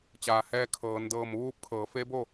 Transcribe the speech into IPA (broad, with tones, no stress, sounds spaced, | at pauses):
t͡ɕ aː˩ h ɛː˧ kʰ ɤː˩˧ n d ɤː˧˩ m ʋ uː˧ p̚ kʰ ɤː˩˧ f e˧˥ b o˥˨